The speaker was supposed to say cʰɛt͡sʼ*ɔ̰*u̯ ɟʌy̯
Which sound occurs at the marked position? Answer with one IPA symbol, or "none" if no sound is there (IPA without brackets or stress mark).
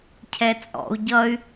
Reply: ɔ̰